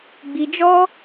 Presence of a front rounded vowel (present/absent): absent